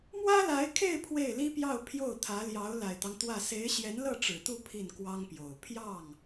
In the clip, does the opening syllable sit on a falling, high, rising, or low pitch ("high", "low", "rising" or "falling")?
high